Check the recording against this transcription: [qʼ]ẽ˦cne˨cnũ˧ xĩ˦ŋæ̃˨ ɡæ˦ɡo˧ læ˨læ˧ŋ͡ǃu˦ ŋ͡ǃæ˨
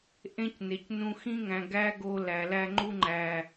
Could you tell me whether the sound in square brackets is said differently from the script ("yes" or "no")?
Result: yes